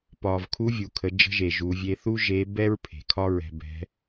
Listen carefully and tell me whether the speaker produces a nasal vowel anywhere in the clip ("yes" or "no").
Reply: no